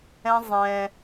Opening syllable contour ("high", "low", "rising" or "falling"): high